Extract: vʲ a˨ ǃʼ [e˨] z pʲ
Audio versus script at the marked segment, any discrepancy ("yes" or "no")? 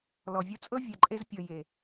yes